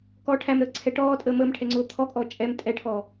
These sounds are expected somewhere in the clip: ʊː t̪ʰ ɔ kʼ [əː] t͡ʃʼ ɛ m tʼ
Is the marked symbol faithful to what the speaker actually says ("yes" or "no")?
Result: no